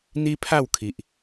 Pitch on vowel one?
high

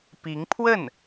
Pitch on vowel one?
rising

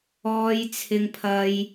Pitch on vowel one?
high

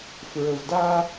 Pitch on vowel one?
low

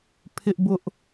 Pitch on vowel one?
high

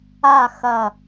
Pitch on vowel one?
falling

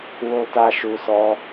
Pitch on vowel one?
high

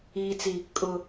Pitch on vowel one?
low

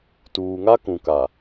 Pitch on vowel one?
low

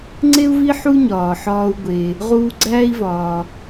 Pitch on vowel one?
high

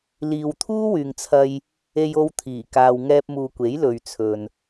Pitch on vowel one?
low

